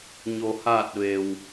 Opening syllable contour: low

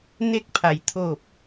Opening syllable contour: falling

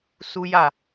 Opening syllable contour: high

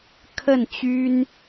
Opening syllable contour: falling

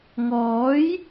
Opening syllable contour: rising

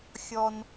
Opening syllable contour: high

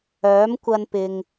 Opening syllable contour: rising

